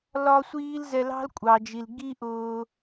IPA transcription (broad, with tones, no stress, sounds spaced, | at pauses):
l ɒ˦ sʷ iː˦ l z ɛ˧ l ɑ̤˦ l kʷʼ ɑ˨ d͡ʒ i˨ l ɡ i˦ ʔ ʊː˧